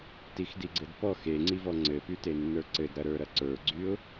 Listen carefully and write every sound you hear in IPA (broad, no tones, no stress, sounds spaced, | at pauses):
t i x d i ɡ͡ǀ ɘ d p ɔ x e ŋ͡ǀ i v ɔ ŋ͡ǀ ɘ p y t e nː ə˞ ǀ ɘ d ɾ ɐ ɾ ə˞ ɾ ɐ ǀ ə˞ ɡ͡ǀ y ʊ̯